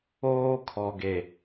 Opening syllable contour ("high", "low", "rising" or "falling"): high